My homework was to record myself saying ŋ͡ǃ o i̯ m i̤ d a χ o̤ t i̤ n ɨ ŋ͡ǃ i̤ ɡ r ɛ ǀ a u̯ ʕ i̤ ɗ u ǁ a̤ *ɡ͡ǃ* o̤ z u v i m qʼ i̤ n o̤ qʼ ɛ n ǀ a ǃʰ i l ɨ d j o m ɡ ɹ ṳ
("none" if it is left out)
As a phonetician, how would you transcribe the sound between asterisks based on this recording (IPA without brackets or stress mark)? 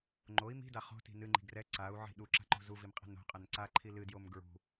ǃ